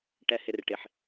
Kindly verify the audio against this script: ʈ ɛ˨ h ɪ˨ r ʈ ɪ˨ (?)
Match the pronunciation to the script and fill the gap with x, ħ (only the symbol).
ħ